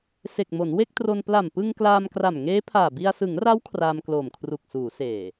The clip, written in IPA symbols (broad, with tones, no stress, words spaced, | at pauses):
se˨˩k̚mo˩˦nwe˥˩k̚tro˧n pla˨˩mpɯ˧ŋ klaː˧mkra˨˩mŋeː˦˥pʰaː˨˩ bi˧a̯ sɯ˩˦ŋra˦˥w kʰraː˧mkloː˨˩mkʰru˨˩k̚suː˩˦ seː˨˩